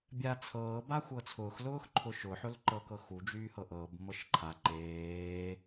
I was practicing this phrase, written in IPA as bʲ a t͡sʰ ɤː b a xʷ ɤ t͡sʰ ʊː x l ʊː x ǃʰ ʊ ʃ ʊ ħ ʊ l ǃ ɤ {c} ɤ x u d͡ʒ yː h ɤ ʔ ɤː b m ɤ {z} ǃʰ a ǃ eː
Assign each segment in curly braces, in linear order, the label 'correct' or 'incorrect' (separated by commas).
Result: incorrect, incorrect